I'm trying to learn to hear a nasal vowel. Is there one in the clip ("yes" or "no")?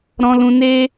yes